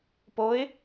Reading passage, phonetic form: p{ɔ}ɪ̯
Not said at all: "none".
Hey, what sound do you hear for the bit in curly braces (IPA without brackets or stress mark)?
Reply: o